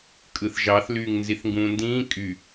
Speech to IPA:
kʼ ɯ θ ʒ ɑ θ l yː ŋ n z i θ ŋ ɡ ũː n d ĩː kʼ y

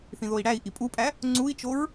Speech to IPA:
θ ĩ ð o i̯ ɽ æ i̯ ʔ i pʼ u pʼ æ | ŋ͡ǀ u i̯ t͡ʃ o ɹ

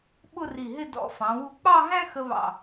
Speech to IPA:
ɓ ʊ˥˧ r i˧˩ ɦ ɪ˥˧ d ɔ̰˧˩ f ɑ̃˩˧ w u˧ k͡p ɑ˥˧ ɦ æ̃˥ x ə˧ β ɑ̰˧˩

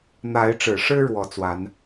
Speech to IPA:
n̪ a˨˦ ɪ̯ ʈ͡ʂ ɻ̩˨˩ ʂ ɻ̩˦ ɻ w ɔ˨˦ t͡s w a˨˦ n

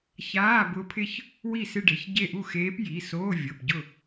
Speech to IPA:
ç aː˧˥˧ b ʊ˧˥ pʰ ɪ˥˧ ç | w i˥˩ s ɪ˥˧ ɖ e˩˧˩ ç ɟ e˥˧ ʔ u˥˩ x eː˧˥ p j i˩˧˩ s oː˧˥˧ vʲ o˩˧˩ p ɟ ʊ˥˩

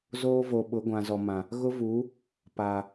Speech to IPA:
z oː˦ v o˨ ɓ ʊ˨˦ ɡʷ ã˨ z ɔ˨ m ã˨ | ɣ ʊ˦ v uː˨˦ | p aː˨

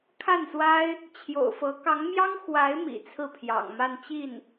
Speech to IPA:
kʰ a˥˩ n s w a˥ ɪ̯ | t͡ɕʰ j o̰˨˩ ʊ̯ f ɤ˧˥ k ɑ˧˥ ŋ m j ɑ˥ ŋ x w a˧˥ ɪ̯ m ḭ˨˩ t͡sʰ ɹ̩˥˩ pʰ j ɑ̰˨˩ ŋ m a˥˧ n t͡ɕ i˥˩ n

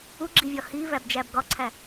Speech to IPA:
u ɡ͡ǁ i vʲ ɒ h i v æ b d͡ʒ æ b ɡ ɒ ǀʰ æ

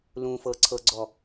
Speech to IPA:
l ũ f ɤ ǀʰ ɤ ɡ͡ǀ ɔ

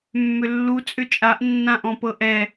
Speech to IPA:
mː ʏ lː u t͡sʼ ʏ t͡ʃʼ a ʔ nː ã ʔ ɔ̃ p ɤ ʔ ɛ

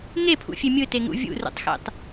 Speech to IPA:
ŋ e pʰ ṵ fʲ e mʲ ɯ t e ŋ ṵ vʲ ṵ r ṵ tˤ x ḛ tˤ

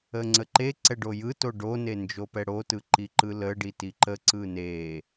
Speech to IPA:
ə ŋ͡ǀ ə ǃ e ǀ ɛ ɖ o j ɯ t o ɖ o n e n d͡ʒ o p ɛ ɽ o t ɯ ǃ i ǃ ɯ l ə ɖ i t i ǃ ə ǀ ɯ n e

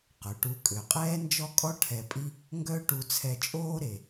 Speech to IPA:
q ø˩ ʈ u˧ kʼ ø˩ qʼ ɛː˥ n d͡ʒ ɔ˥ kʼ ɔ˥ ʈʰ ɛ˧ pʼ i˥ | ŋ ɡ œ˥ ʈ u˧ t͡sʰ ɛ˧ t͡ʃʼ oː˥ ɾ e˩

